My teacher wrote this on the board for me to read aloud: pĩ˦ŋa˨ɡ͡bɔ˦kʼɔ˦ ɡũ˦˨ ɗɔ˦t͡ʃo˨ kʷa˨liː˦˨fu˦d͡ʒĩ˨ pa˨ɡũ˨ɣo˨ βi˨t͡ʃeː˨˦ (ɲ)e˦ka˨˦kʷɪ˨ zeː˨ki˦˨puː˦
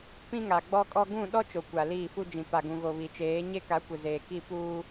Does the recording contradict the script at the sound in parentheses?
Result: no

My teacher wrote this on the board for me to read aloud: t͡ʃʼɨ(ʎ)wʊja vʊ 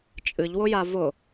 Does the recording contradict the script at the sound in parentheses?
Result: no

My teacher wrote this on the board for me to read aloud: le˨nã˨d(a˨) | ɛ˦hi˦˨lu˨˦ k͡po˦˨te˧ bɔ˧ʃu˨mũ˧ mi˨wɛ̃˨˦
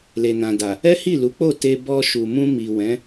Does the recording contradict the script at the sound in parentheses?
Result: no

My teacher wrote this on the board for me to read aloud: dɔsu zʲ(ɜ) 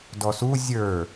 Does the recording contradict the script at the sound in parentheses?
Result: yes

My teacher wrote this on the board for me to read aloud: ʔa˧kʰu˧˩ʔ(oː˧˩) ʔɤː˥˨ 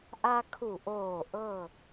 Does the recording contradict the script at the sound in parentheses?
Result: no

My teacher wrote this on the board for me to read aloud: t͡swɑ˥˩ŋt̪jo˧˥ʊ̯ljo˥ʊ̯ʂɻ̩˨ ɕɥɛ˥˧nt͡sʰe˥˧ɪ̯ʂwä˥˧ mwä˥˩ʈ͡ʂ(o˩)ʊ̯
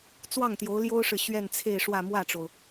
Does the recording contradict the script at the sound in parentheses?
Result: no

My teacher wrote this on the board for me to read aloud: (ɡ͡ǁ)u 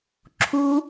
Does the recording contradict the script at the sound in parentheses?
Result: yes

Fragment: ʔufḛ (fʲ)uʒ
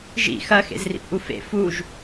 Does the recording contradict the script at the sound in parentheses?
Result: yes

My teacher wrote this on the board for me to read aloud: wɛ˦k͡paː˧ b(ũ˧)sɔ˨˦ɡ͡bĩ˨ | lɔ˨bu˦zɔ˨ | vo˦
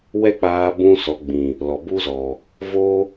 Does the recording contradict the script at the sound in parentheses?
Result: yes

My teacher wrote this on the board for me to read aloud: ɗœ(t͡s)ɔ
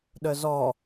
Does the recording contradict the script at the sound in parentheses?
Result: yes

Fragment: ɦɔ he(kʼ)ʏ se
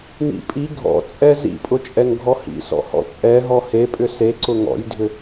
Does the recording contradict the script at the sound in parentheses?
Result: yes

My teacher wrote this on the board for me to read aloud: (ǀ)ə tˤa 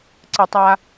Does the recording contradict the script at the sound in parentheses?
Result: no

